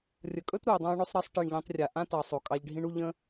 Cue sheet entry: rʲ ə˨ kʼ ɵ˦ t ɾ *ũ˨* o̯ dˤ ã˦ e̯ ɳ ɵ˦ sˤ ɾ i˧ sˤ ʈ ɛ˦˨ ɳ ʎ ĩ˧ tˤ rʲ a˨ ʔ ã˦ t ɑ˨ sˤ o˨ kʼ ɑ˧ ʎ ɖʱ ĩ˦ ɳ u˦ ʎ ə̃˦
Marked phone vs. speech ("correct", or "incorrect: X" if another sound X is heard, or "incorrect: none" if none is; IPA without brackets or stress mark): incorrect: u˨